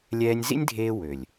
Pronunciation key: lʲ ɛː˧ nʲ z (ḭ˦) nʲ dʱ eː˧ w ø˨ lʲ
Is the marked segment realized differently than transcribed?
no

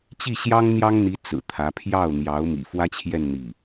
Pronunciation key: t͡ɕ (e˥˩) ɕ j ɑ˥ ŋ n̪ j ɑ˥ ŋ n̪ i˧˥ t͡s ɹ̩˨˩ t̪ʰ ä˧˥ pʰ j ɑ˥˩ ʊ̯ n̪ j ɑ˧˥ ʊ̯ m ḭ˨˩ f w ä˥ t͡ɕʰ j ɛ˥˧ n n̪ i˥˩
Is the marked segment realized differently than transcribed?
yes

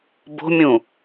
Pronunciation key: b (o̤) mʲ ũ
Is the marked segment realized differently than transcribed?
no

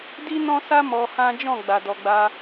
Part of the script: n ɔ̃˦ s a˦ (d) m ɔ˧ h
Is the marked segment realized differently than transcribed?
yes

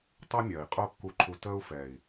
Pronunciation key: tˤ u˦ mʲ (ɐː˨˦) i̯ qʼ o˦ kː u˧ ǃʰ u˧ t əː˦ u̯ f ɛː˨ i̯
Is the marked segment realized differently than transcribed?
yes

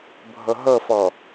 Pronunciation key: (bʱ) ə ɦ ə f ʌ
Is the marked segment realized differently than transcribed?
no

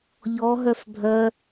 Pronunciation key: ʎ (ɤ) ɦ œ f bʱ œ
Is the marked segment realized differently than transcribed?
yes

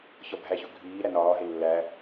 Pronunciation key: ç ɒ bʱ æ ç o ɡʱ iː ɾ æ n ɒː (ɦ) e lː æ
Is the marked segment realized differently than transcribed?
no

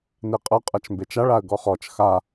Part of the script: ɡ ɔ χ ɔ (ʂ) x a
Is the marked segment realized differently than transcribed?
yes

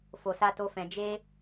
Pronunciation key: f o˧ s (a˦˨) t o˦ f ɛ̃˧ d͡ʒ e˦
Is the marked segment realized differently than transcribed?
yes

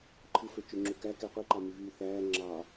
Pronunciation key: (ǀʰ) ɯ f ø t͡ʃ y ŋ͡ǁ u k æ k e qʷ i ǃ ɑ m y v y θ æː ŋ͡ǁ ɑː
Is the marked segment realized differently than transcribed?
yes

